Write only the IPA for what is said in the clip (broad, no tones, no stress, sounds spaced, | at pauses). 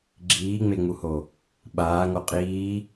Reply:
ɡ͡ǁ iː ŋ͡m e ŋ͡m u h o | ɓ aː ŋ o qʼ iː